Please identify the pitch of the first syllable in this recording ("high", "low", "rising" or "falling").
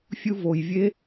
low